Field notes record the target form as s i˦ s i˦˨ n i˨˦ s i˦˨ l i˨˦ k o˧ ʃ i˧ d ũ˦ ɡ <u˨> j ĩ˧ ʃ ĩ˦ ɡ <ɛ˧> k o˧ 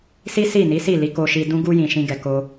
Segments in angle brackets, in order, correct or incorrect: incorrect: u˦, correct

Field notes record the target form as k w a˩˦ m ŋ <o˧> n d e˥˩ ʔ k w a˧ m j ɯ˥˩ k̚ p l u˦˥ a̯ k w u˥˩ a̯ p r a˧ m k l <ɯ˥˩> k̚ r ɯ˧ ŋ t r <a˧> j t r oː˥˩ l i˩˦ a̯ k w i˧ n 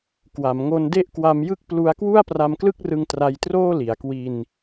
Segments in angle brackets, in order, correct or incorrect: correct, correct, correct

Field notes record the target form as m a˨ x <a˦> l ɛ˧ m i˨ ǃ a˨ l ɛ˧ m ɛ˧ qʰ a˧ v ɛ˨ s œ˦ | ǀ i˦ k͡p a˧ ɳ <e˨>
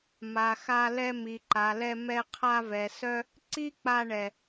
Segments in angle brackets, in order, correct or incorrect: incorrect: a˧, incorrect: ɛ˨

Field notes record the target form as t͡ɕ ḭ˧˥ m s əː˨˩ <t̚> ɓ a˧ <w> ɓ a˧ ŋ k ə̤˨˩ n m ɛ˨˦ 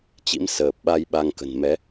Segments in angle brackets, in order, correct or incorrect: incorrect: p̚, incorrect: j

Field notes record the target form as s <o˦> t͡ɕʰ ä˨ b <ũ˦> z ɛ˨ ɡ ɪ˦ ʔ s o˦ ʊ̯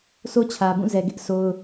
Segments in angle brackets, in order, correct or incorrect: correct, incorrect: ũ˦˨

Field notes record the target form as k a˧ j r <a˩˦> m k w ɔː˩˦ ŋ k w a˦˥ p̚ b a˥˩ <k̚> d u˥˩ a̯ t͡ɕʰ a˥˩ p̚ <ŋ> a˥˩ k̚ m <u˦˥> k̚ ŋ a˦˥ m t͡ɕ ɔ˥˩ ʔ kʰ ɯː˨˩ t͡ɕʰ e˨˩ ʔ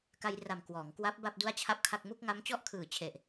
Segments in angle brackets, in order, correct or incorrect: incorrect: a˨˩, incorrect: p̚, incorrect: kʰ, incorrect: u˥˩

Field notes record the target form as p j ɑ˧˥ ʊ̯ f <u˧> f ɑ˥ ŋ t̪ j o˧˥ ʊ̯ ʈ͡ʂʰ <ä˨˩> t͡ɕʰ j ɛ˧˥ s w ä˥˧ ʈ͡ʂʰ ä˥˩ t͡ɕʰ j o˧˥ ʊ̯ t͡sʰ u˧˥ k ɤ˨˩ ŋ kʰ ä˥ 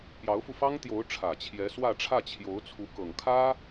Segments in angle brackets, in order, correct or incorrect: correct, correct

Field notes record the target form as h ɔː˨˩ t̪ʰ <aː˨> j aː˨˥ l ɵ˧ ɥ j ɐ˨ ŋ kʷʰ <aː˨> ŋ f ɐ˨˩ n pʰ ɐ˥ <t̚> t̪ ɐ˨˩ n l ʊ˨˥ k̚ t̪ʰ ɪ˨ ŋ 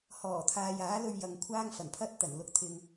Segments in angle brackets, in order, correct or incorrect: correct, incorrect: aː˥, correct

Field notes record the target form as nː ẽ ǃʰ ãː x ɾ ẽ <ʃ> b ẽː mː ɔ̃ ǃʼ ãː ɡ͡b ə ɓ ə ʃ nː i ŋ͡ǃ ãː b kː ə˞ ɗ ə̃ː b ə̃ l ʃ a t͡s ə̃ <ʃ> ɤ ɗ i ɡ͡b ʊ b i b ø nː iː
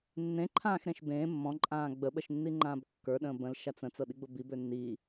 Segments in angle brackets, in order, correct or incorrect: correct, incorrect: t͡s

